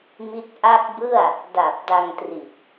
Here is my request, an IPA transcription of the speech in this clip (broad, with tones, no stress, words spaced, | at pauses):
mi˥˩t̚ ʔa˦˥k̚bɯ˥˩a̯ | da˨˩p̚da˧ŋtri˨˩t̚